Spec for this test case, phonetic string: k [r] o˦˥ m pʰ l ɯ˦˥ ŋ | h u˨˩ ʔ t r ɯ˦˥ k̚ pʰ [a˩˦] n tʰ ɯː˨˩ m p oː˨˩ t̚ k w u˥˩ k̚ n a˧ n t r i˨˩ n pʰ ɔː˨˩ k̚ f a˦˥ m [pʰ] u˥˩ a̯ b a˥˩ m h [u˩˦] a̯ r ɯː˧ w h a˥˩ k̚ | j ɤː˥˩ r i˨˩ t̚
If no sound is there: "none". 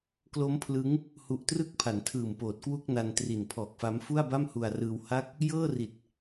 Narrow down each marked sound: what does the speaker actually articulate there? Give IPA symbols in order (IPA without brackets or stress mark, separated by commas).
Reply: l, a˩˦, f, u˧